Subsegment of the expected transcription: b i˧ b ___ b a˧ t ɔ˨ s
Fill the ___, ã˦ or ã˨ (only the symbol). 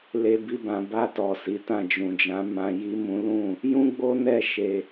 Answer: ã˨